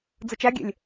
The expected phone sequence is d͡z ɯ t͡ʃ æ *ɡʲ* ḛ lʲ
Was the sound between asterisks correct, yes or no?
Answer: yes